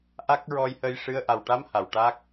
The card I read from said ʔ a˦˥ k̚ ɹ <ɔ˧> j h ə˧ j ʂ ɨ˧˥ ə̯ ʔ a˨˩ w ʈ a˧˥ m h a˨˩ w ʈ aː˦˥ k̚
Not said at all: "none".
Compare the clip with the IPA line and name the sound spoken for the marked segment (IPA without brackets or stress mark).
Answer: ɔ˧